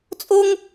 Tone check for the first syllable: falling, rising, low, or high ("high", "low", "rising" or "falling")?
high